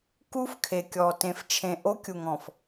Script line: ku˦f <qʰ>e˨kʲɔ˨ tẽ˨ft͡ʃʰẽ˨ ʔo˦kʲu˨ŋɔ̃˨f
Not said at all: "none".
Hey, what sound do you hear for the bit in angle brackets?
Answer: kʰ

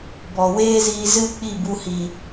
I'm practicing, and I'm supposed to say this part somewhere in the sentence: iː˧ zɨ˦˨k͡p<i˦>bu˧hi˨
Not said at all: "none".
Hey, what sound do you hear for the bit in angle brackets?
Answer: i˦˨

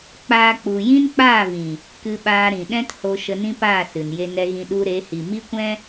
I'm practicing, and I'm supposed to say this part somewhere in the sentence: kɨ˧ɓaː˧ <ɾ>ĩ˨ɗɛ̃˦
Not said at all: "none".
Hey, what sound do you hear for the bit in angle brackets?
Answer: ɾ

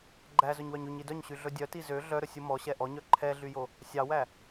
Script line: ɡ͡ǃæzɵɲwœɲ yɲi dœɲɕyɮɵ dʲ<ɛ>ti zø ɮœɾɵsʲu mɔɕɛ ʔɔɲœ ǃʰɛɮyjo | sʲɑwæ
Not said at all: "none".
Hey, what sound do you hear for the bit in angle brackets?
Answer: œ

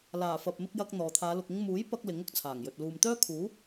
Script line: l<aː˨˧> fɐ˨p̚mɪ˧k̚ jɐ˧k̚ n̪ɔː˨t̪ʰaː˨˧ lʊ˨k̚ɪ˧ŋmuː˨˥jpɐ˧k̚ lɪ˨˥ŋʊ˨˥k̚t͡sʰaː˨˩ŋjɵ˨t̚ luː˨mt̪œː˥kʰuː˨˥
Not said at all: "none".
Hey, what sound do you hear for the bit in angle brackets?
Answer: aː˨˩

